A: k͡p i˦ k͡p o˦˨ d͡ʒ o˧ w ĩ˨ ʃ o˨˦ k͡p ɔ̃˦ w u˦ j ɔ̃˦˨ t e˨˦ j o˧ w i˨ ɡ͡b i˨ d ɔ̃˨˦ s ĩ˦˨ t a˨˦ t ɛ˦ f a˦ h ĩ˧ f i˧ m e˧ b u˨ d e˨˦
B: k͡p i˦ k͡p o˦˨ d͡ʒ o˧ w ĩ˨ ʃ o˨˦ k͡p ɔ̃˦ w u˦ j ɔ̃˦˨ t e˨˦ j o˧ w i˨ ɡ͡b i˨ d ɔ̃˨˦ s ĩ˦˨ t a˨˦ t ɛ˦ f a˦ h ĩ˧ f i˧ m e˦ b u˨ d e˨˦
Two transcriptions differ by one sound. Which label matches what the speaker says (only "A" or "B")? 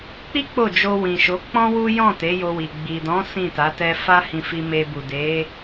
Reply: A